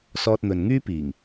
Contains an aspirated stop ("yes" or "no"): no